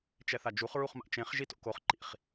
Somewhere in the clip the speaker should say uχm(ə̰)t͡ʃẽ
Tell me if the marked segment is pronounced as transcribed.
no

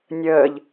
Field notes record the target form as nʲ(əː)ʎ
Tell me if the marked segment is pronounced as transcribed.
yes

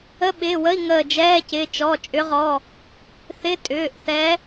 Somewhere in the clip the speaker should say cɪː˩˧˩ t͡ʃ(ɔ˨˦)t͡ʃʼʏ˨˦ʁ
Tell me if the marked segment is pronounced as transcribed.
no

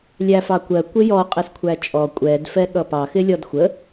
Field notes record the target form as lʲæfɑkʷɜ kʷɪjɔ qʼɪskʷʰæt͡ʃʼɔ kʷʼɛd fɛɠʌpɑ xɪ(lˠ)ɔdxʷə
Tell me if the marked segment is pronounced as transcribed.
no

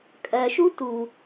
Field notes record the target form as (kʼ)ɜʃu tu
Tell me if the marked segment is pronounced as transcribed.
yes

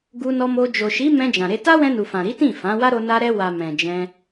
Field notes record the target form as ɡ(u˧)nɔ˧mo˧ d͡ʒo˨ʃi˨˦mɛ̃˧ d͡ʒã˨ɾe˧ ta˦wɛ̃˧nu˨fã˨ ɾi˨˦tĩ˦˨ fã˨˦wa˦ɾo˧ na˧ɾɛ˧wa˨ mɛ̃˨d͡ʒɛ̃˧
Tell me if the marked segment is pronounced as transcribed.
yes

